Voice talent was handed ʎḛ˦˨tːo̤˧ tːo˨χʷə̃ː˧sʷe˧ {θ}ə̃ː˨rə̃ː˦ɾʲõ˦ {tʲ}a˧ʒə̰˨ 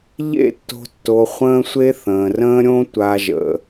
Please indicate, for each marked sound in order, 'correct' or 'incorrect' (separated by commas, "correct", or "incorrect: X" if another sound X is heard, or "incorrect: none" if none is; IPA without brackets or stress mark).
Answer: correct, incorrect: tʷ